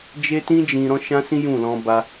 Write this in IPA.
d͡ʒ e˦ t ĩ˦ d͡ʒ ĩ˧ ɾ ɔ̃˦ ʃ ã˦ s ĩ˦ j ũ˦˨ l ɔ̃˧ b a˧

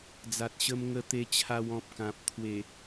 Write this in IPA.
d͡z a˨ t̚ ɕ ə˧ m ŋ ə˧ t̪ e˧ t͡ɕʰ a˧ w ɔ̃˨ p̚ k ã˨ p̚ t̪ʰ w e˨˩

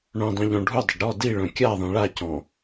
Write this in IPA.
ɳ œ̃ dˤ ĩ ʎ ɔ̃ ɖʱ u dˤ ə ɖ ɾ ɔ d i ɭ œ̃ kʲ a ðˤ ĩ ɭ a c ɔ̃

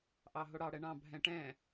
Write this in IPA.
ʔ ɑ ɦ o ɽ ɑ ɽ ɛ ɳ ɑ̃ bʱ ɛ̃ ʈ ɛ̃

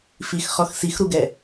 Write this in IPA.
f i x χ ɔ x s i x ɾ u ɡ ɛ

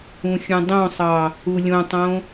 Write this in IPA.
ũ xʲ ũ dˤ õ sˤ ɑ | u lʲ õ tˤ õ

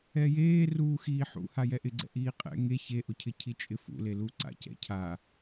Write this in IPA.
ɛ j eː r uː x iː ħ ṵ h a j ɛ ʔ ɪ ɡ͡ǀ ɛ̰ ʔ iː qʼ ɛ̰ ŋ e ç e ʔ ʊ cʰ ɪ cʰ i t͡ʃʼ ɪ f ṵ l e l u ǀ a̰ c ɛ̰ cʰ a

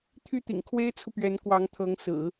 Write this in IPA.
t̪ʰ y˥˩ t̪ ḭ˨˩ ŋ kʰ w e˥ ɪ̯ t͡sʰ u˨ p ɥ ɛ˧˥ n k w ɑ˧˥ ŋ t̪ʰ ɤ˧˥ ŋ s ɹ̩˨˩˦

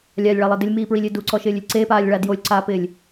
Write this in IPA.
lʲ a lʲ ɭ a lˠ e d ɪ lʲ m iː p ɹ i lʲ ɪː d u ǀ ɔ ʃ ɪː lʲ ɪ lʲ ǀ e p aː lʲ ɭ a d j o lʲ ǀ aː p ɪː lʲ

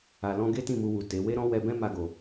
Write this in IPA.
a˨ l ɔ̃˧ ɡ e˦ t ĩ˦˨ m u˧ w u˨ t e˨˦ w e˦ ɾ ɔ̃˦ w ɛ˧ b ɛ̃˦ m a˧ ɡ o˨

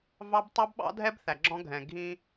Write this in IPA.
v ɑ˦ b tˤ ɑ˦ b ɓ ɑ̰˦ dʱ ɛ˦ b θ æ˨ ɡ͡ǁ ɔ̃˦ ɡʱ ɛ̃˨ ɡʱ ĩ˦

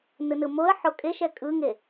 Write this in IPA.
n ɯ n ɯ m o ə̯ ħ o kʼ e ʃ ɛ kʼ ɯ ŋ e

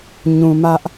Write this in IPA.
ɲ ũ˨ m ä˦ ʔ

